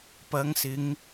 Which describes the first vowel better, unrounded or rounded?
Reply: unrounded